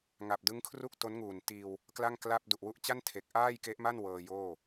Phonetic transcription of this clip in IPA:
ŋ a˨˩ p̚ d ɯ˦˥ ŋ kʰ r u˥˩ k̚ t o˦˥ n ŋ uː˨˩ n t iː˧ w | k l a˥˩ ŋ k l a˥˩ p̚ d u˨˩ ʔ w u˦˥ ʔ t͡ɕ a˥˩ n tʰ e˨˩ k̚ ʔ aː˥˩ j k e˦˥ ʔ m a˥˩ n w ɤː˧ j oː˥˩

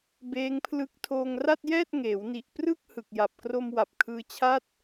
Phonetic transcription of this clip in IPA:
b eː˦˥ ŋ pʰ l ɯ˦˥ k̚ tʰ oː˧ ŋ r a˥˩ t̚ j ɛː˥˩ t̚ ŋ eː˩˦ w n i˨˩ ʔ p r ɯ˥˩ k̚ h ɯ˨˩ k̚ j a˨˩ p̚ k r o˧ m w a˨˩ p̚ kʰ ɯː˧ t͡ɕʰ a˥˩ t̚

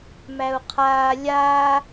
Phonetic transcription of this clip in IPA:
m æ u̯ qʰ aː lʲ aː

